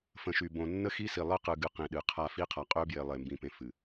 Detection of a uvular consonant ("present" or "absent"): present